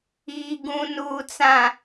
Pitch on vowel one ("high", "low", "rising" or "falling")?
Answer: low